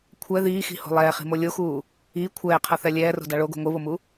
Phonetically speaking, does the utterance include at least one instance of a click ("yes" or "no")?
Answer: no